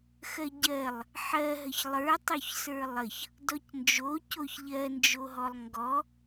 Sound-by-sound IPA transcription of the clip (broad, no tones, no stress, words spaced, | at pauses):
xɜɟɜlˠ | ħɜ ɦəçlˠə˞tˤoç sə˞lˠəç | dɔcnd͡ʒocoç ʎɜnd͡ʒoɦɔlˠ ŋɡɔ